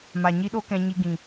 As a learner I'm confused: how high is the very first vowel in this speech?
low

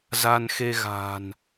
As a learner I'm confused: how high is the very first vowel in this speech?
low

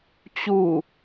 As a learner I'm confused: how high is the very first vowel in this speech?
high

